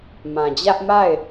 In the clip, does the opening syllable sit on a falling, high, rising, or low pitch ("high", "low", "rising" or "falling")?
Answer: low